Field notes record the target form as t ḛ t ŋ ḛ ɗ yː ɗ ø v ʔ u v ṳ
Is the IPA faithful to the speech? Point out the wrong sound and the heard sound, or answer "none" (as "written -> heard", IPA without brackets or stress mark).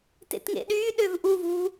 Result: none